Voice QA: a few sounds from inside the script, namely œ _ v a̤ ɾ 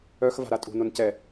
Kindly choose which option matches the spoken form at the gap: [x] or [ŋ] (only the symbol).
x